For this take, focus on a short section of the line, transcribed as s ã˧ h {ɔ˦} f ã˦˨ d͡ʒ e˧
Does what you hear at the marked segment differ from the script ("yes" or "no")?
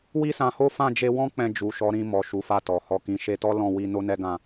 yes